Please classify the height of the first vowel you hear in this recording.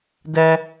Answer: mid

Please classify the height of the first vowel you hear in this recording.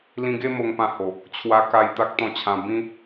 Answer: high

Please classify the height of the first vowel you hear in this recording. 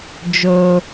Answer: mid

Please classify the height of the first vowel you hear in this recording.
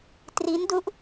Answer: high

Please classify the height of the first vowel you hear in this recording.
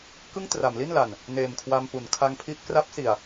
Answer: high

